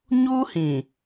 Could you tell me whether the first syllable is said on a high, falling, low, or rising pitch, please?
high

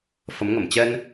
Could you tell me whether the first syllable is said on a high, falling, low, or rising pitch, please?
rising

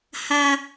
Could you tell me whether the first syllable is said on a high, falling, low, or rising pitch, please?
low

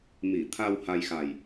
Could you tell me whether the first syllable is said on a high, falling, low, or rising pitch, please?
low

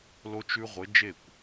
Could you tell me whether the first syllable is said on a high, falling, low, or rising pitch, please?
high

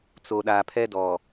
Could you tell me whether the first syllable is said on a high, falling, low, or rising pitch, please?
low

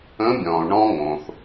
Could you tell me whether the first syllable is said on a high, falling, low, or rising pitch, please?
rising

